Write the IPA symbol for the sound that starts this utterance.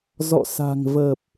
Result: z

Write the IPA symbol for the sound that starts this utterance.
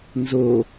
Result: n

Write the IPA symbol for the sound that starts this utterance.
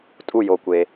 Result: tʼ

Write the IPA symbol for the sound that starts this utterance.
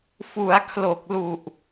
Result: f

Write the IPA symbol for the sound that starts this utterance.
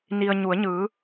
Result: n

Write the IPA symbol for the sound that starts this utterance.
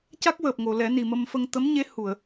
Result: c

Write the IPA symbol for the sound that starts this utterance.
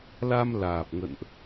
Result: l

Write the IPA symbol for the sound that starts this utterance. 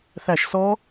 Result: θ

